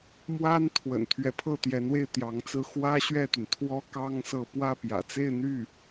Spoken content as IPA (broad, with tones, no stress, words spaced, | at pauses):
mwa˥nt̪ʰwə̰˨˩n t̪ʰɥɛ˧˥pʰɤ˥˩t̪jɛ˧˥nwe˥˩ɪ̯ t̪jɑ˧˥ŋt͡sɹ̩˥ xwä˥ɕɥɛ˥˩t̪y˩n t̪ʰwɔ˥kɑ˥ŋ sɤ˥˧ pwä˥˩pjä̰˨˩t͡se˥˧ɪ̯ n̪y˥˩